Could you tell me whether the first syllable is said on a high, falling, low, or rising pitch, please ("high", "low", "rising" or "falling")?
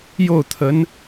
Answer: falling